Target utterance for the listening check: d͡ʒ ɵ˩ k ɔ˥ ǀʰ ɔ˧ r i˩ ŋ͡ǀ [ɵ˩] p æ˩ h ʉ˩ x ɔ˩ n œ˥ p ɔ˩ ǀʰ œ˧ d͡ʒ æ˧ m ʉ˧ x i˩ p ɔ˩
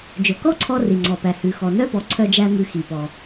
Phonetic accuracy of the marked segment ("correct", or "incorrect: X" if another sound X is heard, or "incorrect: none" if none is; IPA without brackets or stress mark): incorrect: ɔ˩